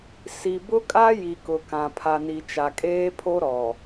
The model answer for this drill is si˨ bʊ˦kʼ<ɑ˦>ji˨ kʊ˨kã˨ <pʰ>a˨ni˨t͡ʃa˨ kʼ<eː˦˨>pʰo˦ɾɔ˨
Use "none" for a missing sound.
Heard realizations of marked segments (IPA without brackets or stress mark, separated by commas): a˦, pʰ, eː˦